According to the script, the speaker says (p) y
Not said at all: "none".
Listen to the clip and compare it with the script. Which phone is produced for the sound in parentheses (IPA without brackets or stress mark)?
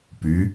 p